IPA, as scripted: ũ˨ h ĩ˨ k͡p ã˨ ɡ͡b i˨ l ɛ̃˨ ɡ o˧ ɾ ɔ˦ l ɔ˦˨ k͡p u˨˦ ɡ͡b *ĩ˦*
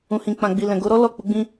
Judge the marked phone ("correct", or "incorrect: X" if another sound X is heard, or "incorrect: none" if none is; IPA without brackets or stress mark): correct